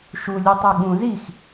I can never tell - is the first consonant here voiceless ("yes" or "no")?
yes